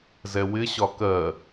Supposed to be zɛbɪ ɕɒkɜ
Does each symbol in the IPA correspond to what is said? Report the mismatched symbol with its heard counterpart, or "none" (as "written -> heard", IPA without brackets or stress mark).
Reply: b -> w